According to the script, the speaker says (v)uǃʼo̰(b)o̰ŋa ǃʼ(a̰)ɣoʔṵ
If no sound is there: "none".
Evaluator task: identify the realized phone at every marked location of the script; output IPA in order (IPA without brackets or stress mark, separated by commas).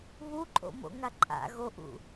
β, m, a̰